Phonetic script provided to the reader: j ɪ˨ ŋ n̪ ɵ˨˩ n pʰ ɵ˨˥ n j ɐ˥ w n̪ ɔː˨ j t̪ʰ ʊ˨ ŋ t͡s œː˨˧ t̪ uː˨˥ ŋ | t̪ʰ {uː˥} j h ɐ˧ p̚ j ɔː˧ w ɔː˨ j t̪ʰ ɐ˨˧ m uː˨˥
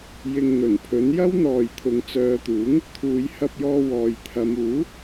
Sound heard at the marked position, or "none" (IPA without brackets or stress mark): uː˨˧